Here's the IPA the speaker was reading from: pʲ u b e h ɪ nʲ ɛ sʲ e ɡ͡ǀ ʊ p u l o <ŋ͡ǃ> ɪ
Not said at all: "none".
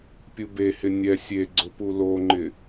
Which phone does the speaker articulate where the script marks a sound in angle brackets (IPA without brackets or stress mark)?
ŋ͡ǃ